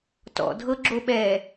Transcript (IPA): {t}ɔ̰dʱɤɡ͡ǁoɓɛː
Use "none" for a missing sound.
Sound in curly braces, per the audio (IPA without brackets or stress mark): t